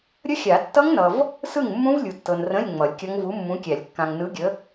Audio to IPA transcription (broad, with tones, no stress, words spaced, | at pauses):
ɾʲə˦˥xʲa˨˩˦ tːʌ˦˥ŋnʌ˨v | sɯ˥˩ŋmːũ˦˥v lʲu˨tːɤ˨nrə̃˧˥˧lʲ ŋ͡mʌ˨˩˦lʲkʲʌ˦˥ŋ vu˨˥mːũ˨˥kʲæ˨˩˦lʲ kːã˨ŋnɯ˨˥ɡʲə˨˥